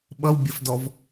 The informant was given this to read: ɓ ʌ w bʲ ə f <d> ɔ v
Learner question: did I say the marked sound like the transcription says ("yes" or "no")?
yes